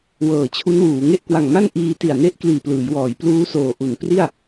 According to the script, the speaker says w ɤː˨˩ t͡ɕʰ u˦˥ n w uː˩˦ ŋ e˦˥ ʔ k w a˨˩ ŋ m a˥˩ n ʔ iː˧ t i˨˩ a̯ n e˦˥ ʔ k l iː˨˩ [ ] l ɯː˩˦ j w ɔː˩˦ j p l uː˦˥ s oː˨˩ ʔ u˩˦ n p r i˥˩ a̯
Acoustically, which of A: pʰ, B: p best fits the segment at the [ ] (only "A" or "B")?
B